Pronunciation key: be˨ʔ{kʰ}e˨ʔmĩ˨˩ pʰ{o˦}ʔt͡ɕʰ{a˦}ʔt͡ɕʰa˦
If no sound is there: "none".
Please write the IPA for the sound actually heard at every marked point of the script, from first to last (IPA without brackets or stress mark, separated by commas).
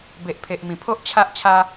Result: pʰ, o˦, a˦